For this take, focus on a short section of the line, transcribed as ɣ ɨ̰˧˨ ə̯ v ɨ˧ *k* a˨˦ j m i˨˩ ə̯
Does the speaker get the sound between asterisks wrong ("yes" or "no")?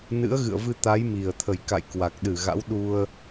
yes